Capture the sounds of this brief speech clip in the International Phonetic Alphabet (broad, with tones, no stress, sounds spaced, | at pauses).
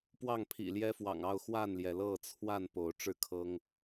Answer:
p w ɑ˥˨ ŋ pʰ ḭ˨˩ l j ɛ˦ f w ɑ̰˨˩ ŋ ɑ˥˨ ʊ̯ x w a˥˨ n l j ɛ˩ l ɤ˥˨ t͡sʰ w a˥˨ n p o˨˦ ʊ̯ ʈ͡ʂ ɻ̩˥˨ kʰ ɤ˦ ŋ